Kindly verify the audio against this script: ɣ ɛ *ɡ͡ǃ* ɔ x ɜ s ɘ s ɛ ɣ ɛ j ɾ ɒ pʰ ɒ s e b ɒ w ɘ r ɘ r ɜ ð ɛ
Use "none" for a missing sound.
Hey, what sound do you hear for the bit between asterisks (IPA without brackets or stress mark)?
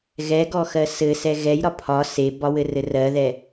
ɡ